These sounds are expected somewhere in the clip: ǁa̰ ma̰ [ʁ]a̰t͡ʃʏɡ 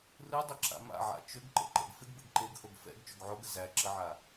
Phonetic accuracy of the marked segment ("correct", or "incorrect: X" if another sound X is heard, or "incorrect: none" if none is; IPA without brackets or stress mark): incorrect: ʕ